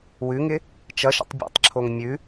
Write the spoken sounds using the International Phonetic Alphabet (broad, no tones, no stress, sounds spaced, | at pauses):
w ʉ ŋ ɪ | t͡ʃ ʌ ʃ ə̰ tˤ bʲ o̰ tˤ ǁʰ o ŋ mʲ ʉ